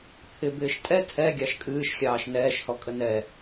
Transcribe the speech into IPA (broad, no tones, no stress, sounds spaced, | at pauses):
pʰ ɪ b ɪː ʃ tʼ ɛ tʰ ɛ ɡʲ ɑ ʃ kʼ ɨː ʃ xʲ ɑː ʃ n ɛː ʃ h ɔ kʼ ə n ɛ